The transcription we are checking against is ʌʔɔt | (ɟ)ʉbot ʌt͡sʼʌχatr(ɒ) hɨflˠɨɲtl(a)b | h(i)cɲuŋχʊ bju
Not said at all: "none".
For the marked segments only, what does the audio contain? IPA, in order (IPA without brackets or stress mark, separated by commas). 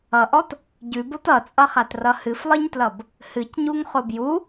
ɟ, ʌ, ʌ, ɨ